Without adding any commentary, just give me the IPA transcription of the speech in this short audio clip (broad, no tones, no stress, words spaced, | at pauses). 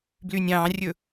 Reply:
blynʲɑ̃rʲɵ